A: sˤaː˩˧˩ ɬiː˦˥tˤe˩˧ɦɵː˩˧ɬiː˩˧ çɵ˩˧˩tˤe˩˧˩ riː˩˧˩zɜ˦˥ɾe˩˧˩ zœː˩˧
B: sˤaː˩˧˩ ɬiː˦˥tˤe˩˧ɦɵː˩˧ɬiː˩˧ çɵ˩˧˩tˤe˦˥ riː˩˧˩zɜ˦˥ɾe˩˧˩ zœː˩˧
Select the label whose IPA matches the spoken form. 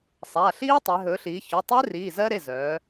B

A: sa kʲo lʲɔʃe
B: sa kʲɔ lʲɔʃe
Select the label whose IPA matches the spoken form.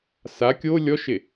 A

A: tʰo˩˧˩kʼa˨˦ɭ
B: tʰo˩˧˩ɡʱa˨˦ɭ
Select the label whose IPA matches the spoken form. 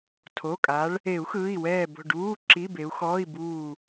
A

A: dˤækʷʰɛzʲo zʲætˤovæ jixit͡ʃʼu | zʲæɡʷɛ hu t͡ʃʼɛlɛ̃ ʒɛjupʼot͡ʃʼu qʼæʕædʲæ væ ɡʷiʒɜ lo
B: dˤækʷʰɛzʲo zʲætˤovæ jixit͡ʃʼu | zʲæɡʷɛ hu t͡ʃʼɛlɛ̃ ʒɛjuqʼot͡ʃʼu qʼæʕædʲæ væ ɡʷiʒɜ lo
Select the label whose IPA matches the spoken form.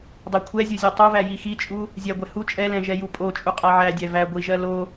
A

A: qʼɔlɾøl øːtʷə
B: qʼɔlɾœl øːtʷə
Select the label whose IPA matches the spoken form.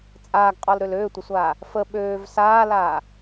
A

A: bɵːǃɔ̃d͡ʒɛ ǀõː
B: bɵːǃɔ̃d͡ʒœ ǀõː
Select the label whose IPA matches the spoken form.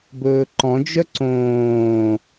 B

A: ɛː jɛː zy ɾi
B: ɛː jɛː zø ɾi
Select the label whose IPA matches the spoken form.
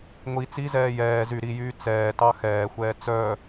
A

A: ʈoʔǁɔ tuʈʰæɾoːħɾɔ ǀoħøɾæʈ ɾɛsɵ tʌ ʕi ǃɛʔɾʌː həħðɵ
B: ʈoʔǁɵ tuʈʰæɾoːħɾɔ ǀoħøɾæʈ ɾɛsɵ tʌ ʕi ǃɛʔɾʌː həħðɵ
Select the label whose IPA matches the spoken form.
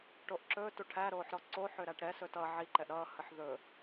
B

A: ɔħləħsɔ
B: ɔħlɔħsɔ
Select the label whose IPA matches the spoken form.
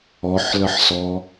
A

